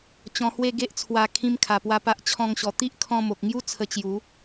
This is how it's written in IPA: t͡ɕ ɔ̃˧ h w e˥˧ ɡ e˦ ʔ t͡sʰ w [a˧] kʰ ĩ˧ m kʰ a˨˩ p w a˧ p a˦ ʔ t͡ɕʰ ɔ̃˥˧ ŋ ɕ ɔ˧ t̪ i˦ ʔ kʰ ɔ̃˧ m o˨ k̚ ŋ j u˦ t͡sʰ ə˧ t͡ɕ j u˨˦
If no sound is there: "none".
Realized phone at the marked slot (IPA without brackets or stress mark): a˧